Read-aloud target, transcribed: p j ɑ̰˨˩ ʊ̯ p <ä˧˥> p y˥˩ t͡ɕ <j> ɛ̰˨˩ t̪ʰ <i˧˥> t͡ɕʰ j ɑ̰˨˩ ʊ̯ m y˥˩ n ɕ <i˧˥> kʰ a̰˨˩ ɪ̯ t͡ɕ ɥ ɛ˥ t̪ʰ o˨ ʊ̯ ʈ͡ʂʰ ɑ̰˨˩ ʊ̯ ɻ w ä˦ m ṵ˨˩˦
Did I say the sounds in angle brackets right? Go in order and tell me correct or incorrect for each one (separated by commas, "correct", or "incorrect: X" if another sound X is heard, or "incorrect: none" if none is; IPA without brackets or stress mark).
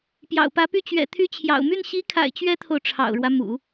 correct, incorrect: ɥ, incorrect: y˧˥, correct